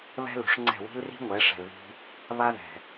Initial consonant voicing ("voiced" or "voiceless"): voiced